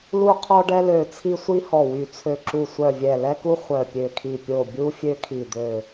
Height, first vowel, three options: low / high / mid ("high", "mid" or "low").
high